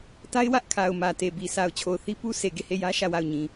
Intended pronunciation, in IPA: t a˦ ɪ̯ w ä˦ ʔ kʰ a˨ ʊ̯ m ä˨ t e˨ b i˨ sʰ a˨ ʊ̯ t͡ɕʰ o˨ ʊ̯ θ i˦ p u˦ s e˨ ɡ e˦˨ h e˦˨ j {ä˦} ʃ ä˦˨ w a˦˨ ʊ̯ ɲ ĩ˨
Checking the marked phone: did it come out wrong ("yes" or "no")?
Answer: no